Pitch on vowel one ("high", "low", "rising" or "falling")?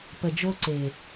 low